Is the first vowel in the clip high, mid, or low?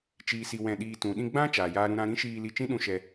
high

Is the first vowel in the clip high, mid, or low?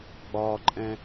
low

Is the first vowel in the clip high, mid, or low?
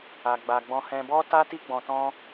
low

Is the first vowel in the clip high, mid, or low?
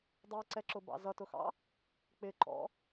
mid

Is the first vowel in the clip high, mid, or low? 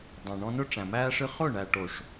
low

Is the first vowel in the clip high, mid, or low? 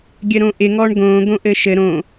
mid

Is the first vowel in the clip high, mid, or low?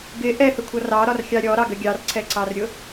high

